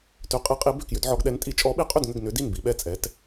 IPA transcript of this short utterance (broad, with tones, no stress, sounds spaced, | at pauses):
t ʏ˨˥ qʼ i˨˥ qʼ i˨˥ b ʏ˥˩ k j ʏ˨˥ d ʕ ɔ˨˥ ɡ ɗ ɛ˨˥ n tʼ i˨˥ t͡ʃʼ ɔ˨˥ ɓ i˨˥ qʼ ʏ˥˩ d ŋ ʏ˥˩ ɡ n ʏ˨˥ d i˥˩ n b i˨˥ ɓ ɛ˥˩ t͡sʼ ɛ˨˥ t